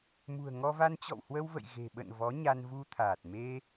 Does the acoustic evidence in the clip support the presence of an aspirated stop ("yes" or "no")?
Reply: yes